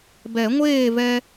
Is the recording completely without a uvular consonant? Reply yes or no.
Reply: yes